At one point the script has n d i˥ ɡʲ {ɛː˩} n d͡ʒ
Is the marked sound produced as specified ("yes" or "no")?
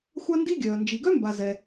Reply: no